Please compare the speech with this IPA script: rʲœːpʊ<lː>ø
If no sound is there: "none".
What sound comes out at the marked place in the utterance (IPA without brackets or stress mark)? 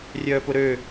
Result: ɾ